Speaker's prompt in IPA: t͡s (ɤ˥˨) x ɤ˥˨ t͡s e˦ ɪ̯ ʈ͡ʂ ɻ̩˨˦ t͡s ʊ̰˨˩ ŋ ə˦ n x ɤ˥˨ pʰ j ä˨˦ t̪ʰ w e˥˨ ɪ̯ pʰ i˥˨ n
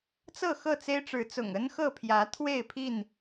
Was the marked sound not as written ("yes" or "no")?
no